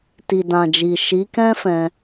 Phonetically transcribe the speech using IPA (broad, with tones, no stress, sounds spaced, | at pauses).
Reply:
t i˨ d ã˨ d͡ʒ i˨ ʃ i˨˦ k ɛ̃˦ f ɛ̃˧